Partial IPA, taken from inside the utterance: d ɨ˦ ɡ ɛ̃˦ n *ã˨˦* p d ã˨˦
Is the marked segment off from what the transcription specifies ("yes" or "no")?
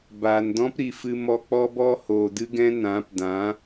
no